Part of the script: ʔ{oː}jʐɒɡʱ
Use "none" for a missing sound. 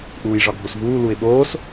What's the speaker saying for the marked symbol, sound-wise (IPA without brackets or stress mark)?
uː